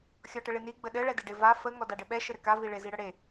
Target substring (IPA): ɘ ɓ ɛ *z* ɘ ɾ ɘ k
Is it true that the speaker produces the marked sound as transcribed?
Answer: no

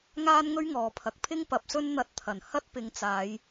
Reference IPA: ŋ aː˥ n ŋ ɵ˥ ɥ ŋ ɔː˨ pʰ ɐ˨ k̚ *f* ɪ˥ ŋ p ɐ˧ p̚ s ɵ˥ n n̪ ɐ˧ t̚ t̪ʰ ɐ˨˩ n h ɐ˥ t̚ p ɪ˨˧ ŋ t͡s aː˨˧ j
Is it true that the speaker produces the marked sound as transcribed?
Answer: no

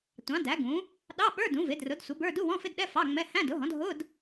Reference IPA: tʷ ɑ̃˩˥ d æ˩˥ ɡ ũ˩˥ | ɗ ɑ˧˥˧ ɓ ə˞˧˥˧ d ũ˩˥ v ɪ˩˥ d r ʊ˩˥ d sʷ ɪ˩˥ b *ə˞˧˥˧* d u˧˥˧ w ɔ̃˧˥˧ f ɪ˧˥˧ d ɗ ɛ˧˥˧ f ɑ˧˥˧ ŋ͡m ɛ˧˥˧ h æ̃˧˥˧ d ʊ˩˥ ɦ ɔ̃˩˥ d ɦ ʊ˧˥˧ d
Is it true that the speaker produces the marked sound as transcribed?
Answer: yes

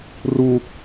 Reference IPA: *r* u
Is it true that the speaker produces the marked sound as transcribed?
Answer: yes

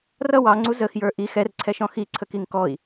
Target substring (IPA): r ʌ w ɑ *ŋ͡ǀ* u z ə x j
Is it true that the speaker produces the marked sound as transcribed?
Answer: yes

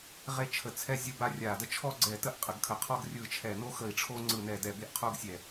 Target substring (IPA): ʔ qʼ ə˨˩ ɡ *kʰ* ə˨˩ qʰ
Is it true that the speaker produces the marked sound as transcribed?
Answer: yes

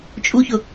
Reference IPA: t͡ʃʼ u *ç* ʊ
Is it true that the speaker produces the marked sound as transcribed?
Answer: yes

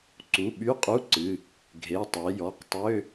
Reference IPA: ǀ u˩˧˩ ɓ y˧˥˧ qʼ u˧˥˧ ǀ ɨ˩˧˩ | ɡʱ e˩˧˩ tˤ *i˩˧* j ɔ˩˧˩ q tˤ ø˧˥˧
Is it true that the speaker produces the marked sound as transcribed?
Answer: no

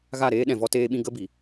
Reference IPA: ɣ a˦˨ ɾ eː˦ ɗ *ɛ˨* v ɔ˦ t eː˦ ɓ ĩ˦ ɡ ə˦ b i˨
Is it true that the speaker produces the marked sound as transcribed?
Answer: no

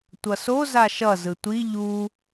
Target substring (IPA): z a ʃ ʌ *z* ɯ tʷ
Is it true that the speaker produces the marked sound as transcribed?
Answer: yes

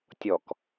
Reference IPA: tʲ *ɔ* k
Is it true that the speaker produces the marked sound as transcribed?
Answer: yes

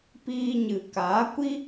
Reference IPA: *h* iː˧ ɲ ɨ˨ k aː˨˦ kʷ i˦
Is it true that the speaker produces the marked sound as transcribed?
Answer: no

